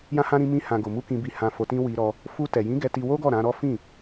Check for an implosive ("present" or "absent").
absent